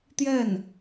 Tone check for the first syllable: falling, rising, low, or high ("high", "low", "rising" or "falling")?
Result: falling